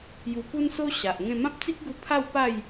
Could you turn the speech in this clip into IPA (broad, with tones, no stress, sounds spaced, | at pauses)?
j u˧ p u˦ n s o˦ ɕ a˨ ʔ ŋ ẽ˥˧ m ã˦ p̚ t͡s i˦ k̚ ɡ u˧ pʰ a˥˧ w p a˥˧ j